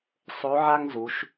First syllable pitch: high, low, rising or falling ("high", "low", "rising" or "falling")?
rising